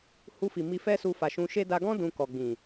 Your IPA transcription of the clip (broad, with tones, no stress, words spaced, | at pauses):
hu˧fi˨ mi˧fɛ˦su˧ fa˨ʃũ˧ʃe˦ da˧ɡɔ̃˦ dũ˧kɔ˨ ɡ͡bĩ˨